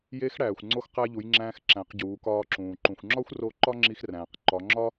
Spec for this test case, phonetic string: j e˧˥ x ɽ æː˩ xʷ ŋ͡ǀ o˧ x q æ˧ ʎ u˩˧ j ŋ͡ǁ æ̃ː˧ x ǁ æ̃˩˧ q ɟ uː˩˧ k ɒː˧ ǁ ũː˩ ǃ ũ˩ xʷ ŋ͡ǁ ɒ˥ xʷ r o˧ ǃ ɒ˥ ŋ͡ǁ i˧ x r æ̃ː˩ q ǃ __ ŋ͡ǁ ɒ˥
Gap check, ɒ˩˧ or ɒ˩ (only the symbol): ɒ˩˧